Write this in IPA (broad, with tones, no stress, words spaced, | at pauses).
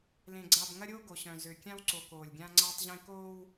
lẽ˨ɡ͡ǀa˨bŋɐ˦ɾʲoː˦ ɡo˨ɕœ̃˨zø˨ kʲã˦wǀo˨ koː˨lʲɡʲã˦ ŋ͡ǀaː˦tˤʑẽ˦ koː˦w